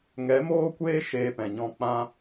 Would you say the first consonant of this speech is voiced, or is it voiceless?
voiced